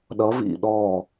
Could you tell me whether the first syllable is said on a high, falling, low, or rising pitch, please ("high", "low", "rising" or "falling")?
rising